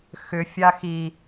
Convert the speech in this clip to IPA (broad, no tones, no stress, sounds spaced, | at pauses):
x ʏ fʲ a x i